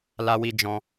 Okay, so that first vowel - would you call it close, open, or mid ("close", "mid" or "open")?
open